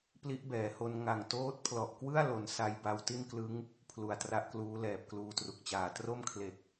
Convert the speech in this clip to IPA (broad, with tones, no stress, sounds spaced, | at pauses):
p l i˦˥ ʔ b ɛː˩˦ h o˧ n ŋ a˨˩ ŋ t oː˦˥ t̚ pʰ l ɔ˨˩ ʔ k w ɯ˥˩ a̯ l o˧ n s a˧ j b a˧ w t i˥˩ n k l ɯ˦˥ ŋ | pʰ l u˨˩ a̯ t r a˦˥ ʔ k l uː˦˥ l ɛː˨˩ p̚ k l uː˧ t r u˨˩ k̚ t͡ɕ aː˨˩ t r o˥˩ m kʰ l e˨˩ k̚